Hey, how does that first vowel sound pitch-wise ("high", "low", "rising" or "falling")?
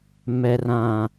low